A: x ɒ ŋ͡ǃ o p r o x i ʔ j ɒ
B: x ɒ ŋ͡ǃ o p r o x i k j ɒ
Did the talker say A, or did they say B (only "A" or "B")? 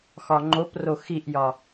A